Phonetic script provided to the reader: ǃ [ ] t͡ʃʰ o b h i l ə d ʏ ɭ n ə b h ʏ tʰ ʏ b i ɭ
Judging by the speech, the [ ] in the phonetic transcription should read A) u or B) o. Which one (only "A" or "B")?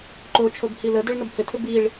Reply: B